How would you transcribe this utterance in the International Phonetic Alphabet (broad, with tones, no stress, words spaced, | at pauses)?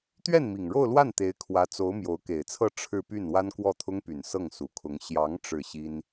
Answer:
t̪ɥɛ˥˩nmi˨˩ŋɻo˥˧ʊ̯lwa˥˩n t̪e˧˥ɪ̯kʰwä˧˥t͡so˧˥ʊ̯ mjo˧˥ʊ̯ke˨˩ɪ̯t͡sʰɤ˥˧ ʈ͡ʂʰɻ̩˥˧py˥˩n wa˥nkwɔ˥˩t̪ʰʊ˥ŋpy˨˩n sɤ˥˩ŋsu˨˩kʰʊ˧˥ŋ ɕjɑ˧˥ŋ ʈ͡ʂɻ̩˥˩ɕi˥n